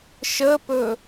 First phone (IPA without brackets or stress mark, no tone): ʃ